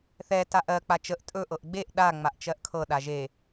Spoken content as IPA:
θɛ taʔɜ k͡pat͡ʃəʔ tʼɵ ʔɤʔɡ͡beʔ ɗa ŋ͡maʔt͡ʃɜʔkʰɤ ɗaʒe

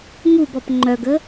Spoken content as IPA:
ŋubɔp ŋ͡ǃœɡə

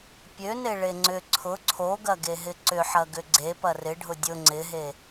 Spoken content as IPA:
pʲøne ɭeŋ͡ǀʏ ǀʰʊ ǀʰoɡɐɡeɦɪ ǀʏħɐ ɡʏɡ͡ǀe pɐrɪɖʱʊ dʲʊ ŋ͡ǀɪɦe

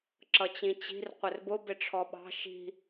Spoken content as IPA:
ǁʌt͡ɕĩt͡ɕi̤r qʷɪrbʊ bɪʈ͡ʂʰɔɓɑ̤ ʃi̤

